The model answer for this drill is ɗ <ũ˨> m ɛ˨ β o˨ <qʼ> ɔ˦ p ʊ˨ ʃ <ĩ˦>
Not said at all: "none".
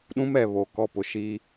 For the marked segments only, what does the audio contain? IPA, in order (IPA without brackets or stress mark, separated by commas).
ũ˦, k, i˦